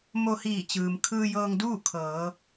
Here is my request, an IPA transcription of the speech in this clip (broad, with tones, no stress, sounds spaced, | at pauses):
m o˧ h iː˧˩ t͡ɕ ɯː˩ m kʰ ɯː˧ j ɤː˧ ŋ d uː˥˨ kʰ ɤː˩˧